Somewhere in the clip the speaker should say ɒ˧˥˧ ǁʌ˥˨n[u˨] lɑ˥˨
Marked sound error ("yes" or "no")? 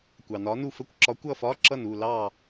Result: yes